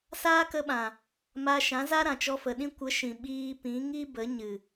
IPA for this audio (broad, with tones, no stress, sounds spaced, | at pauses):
s aː˦ k ə˧ ɓ ã˨ | m a˧ ʃ ã˨˦ z a˦ ɾ ã˨ t͡ʃ ɔ˧ f ə˨ ɗ ĩ˦ kʷ ə˨˦ ʃ ĩ˨ ɓ iː˧ p ĩ˨˦ ŋ i˦ b ə˨˦ ɲ ɨ˨